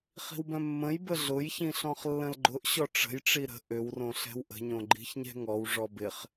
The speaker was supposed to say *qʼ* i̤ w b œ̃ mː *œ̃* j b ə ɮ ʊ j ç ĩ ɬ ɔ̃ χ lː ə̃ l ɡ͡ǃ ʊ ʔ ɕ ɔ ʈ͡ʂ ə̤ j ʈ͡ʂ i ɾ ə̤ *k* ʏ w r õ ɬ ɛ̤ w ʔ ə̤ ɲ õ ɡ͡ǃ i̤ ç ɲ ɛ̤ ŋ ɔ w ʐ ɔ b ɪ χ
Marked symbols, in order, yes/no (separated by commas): no, no, no